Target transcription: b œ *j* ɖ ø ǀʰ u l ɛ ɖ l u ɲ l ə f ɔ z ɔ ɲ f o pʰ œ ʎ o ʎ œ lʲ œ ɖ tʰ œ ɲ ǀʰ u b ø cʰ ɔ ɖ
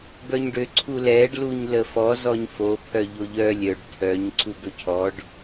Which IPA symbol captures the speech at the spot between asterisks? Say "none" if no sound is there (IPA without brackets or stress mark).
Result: ɲ